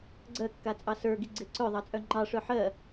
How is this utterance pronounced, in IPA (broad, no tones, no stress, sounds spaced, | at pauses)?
ɡ͡ǀ ɜ kː a t͡sʼ ɑ s ə˞ ɡ i ɡ͡ǀ e ǀ œ ðˤ ɑ t͡sʼ œ ŋ͡ǃ ɑ ʂ œ ħ ɜ